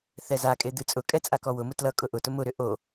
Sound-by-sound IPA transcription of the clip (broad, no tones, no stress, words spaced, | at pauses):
θɛzakʼe d̪ɨt͡sʼʊkʼɛ t͡sʼakɔwʊmʊ tlʌ kʼʊʔʊtʊ mʊɾʏ ʔo